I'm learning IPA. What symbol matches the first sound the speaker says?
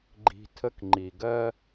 ɡ͡ǃ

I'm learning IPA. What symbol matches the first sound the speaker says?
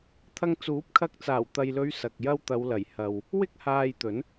t̪ʰ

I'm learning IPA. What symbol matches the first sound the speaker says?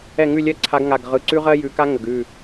ɛ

